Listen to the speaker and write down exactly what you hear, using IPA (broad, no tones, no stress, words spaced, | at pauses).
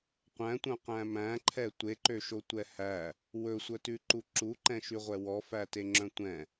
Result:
qʷæ̃tʷœ̃qæ̃ mæ̃ǃʰɛ tʷeǃøʃotʷɛ hæ | wɵsʷœtʉǃu ǁuǃɛ̃ʃyʁʷɛ wɔfæteŋ͡ǁœ̃ tʷɛ̃